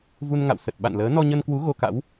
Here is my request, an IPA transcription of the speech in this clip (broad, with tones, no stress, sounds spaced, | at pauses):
v u˧ n ŋ a̰˧˨ w s ə˨˩ t̚ ɓ a̰˧˨ n l əː˨˦ n ɔ˧ ɲ ə˧ n k w u˨˦ ɣ o˧ k a̰˧˥ w